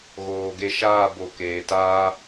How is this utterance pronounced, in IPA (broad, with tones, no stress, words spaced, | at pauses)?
ɣoː˨ ɡe˧ʃaː˦˨ bo˨ keː˨taː˦